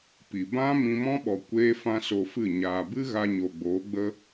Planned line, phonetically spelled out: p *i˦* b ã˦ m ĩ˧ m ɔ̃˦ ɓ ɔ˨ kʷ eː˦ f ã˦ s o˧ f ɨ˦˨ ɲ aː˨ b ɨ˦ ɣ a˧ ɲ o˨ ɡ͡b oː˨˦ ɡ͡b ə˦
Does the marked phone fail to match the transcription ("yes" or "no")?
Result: yes